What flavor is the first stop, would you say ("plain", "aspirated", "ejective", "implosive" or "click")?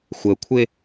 aspirated